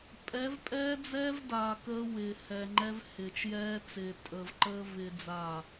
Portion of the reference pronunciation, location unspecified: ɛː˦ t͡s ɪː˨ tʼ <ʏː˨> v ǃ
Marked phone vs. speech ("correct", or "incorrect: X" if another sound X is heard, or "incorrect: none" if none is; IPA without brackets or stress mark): incorrect: əː˨